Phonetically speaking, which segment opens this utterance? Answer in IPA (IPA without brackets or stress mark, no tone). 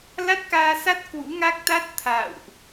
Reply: l